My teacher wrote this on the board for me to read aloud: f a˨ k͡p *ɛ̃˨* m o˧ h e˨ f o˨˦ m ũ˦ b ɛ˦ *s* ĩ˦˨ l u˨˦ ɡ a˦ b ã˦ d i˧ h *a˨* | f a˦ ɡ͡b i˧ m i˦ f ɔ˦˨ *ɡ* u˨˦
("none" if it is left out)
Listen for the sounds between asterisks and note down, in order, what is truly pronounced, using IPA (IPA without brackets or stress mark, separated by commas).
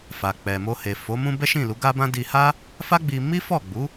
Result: ɛ˨, ʃ, a˦, ɡ͡b